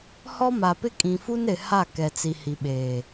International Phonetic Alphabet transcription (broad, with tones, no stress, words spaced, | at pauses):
hɔ˦ma˨pɪ˦ kʼĩ˨fu˦nɾɪ˨ha˦˨ kɛ˨t͡si˨ hi˨ɓeː˨